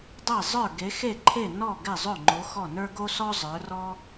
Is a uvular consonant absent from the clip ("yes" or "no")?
yes